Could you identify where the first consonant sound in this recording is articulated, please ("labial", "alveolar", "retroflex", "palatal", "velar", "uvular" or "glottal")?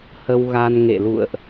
glottal